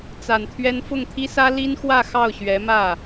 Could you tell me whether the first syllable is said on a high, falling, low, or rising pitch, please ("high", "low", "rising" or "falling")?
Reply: low